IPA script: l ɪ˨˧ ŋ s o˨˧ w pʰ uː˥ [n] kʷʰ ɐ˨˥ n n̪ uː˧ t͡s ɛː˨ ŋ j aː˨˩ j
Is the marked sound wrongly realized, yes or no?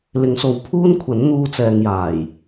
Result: no